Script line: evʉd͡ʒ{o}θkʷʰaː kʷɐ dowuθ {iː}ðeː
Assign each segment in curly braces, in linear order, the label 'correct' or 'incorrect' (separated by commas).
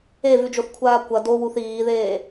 correct, correct